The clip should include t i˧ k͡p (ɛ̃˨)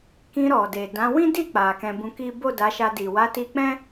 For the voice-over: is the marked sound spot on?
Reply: no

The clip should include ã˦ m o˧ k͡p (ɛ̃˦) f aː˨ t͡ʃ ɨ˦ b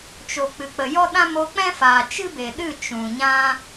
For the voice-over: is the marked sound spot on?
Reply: yes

